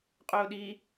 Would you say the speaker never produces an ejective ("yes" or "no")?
no